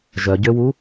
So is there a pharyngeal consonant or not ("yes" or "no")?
no